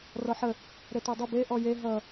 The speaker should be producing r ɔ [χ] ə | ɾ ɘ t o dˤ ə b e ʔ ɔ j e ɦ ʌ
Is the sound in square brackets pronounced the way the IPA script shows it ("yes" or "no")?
no